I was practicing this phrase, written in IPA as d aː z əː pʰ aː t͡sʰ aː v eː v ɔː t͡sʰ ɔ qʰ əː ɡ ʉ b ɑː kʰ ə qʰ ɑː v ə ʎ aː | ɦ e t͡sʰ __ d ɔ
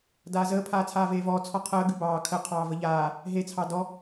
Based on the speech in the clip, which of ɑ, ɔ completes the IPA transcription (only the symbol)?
ɑ